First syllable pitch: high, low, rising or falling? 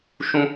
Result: high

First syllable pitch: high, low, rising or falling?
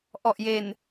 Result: low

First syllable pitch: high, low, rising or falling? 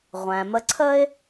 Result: low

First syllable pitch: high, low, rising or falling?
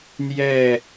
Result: falling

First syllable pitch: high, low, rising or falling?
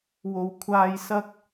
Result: high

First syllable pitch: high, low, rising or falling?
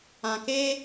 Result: low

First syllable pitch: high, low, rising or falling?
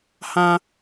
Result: high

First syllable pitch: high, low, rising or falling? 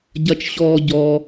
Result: high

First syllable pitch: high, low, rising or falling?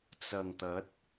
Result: low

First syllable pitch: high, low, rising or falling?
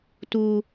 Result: high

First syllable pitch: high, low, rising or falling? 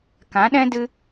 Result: rising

